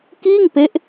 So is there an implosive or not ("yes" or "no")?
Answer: no